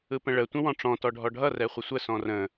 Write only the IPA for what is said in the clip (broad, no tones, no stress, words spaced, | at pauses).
ɯpə̃ɭə tʷə̃wɔ̃ʈ͡ʂɔ̃ tɔɖʱɔɖʱʌ rɛχʷəsʷə sɔ̃rə̃